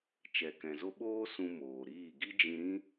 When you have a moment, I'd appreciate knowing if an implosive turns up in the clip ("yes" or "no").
yes